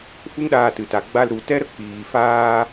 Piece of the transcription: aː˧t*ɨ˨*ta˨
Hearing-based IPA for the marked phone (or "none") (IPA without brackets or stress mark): ɨ˨